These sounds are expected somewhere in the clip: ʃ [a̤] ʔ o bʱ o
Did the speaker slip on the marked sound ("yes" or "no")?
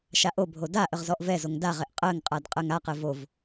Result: yes